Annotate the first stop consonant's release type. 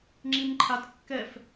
click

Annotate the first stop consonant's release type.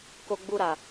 plain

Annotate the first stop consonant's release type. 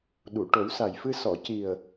implosive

